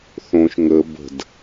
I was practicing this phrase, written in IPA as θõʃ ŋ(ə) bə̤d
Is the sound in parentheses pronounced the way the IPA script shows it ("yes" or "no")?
yes